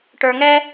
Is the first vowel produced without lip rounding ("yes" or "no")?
yes